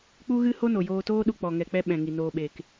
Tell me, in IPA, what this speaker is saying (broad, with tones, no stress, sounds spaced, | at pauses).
k͡p u˦ ɣ ɨ˦ h o˦ n o˨ j oː˧ t oː˦ ɗ u˧ k͡p ɔ˨ ŋ ɛ˨ k͡p ɛ˧ ɓ ɛ̃˨ ŋ i˨ n oː˨ ɓ e˨ k